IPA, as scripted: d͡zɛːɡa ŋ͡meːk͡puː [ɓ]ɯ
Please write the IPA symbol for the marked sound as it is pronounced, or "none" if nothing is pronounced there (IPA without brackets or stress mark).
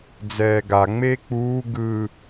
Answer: ɡ